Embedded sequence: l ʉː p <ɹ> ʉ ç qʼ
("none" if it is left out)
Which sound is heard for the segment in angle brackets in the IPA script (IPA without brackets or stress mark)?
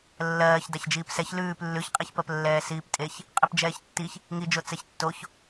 lː